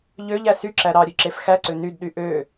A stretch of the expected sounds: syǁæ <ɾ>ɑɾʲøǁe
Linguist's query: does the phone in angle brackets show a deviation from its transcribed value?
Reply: no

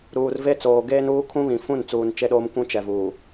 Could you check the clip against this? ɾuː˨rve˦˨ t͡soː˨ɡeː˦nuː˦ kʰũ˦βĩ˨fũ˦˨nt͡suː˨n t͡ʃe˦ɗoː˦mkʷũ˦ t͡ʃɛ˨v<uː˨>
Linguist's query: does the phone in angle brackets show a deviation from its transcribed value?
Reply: no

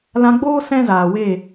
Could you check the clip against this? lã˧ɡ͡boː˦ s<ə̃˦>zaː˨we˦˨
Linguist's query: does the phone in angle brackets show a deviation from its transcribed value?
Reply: yes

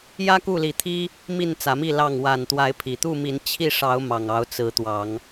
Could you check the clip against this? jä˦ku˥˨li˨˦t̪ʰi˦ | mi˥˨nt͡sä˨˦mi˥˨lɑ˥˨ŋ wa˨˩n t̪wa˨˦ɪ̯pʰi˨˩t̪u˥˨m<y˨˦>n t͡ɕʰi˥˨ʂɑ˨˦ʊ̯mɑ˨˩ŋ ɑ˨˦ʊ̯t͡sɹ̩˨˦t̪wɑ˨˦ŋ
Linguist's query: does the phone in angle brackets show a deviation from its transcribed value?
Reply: yes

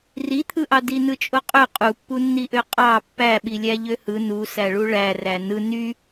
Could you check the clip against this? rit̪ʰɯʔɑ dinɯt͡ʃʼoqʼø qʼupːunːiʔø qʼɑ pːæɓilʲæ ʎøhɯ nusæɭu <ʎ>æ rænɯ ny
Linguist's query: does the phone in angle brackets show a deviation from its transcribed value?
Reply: yes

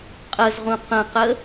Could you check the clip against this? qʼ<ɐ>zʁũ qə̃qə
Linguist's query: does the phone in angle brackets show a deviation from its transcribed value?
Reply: yes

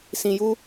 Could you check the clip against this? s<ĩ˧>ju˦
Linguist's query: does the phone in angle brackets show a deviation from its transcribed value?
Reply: no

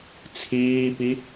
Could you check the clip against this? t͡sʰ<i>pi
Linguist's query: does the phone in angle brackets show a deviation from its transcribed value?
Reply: yes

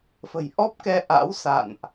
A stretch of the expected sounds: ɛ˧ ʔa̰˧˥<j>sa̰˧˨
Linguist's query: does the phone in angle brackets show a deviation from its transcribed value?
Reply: yes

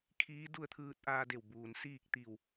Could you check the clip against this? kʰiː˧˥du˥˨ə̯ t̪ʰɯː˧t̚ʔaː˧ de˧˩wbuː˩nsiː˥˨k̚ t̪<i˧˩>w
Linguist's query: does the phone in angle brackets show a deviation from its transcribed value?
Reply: no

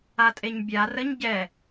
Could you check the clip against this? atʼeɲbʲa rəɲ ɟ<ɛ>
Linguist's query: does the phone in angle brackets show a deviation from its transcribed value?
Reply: no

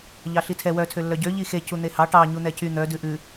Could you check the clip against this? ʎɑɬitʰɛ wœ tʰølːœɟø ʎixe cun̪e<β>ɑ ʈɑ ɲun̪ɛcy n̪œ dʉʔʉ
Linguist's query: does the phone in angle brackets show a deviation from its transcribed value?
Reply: yes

